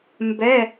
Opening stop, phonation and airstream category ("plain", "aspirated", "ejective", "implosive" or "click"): plain